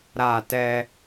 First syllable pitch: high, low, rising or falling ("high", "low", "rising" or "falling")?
falling